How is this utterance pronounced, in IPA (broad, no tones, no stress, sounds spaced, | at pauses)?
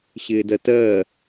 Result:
ɕ ɪː d ɜ t ɜ